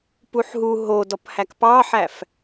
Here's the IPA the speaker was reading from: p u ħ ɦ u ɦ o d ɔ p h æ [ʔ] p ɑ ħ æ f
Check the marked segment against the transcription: incorrect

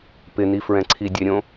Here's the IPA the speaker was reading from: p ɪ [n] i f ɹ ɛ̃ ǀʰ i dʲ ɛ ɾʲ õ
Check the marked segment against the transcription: correct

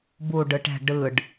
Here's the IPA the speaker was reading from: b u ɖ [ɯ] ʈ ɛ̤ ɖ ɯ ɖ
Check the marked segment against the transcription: correct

